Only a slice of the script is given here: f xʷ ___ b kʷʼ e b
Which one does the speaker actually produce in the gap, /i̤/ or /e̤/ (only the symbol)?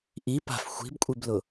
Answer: i̤